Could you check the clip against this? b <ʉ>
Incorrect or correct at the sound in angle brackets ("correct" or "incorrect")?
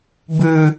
correct